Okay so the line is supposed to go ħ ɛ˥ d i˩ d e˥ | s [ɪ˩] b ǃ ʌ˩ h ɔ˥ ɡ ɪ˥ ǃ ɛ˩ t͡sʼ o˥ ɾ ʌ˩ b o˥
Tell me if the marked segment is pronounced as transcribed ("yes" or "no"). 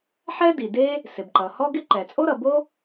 yes